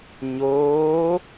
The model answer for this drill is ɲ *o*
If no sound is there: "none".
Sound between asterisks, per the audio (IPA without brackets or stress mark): oː